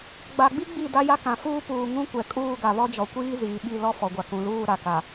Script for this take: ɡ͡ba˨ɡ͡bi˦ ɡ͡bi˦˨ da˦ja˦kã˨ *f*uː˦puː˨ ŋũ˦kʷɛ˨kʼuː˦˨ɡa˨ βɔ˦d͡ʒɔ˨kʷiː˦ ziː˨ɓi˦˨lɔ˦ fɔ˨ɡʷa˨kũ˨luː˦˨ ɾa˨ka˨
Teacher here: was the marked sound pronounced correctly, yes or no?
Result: yes